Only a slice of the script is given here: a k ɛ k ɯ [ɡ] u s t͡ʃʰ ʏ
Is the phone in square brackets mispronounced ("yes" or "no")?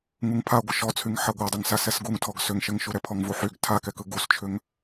no